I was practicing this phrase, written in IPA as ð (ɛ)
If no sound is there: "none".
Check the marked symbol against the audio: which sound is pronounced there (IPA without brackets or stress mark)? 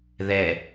ɛ